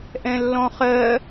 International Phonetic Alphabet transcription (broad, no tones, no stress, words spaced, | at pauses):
ʔɛ̃lːɔ̃χɜ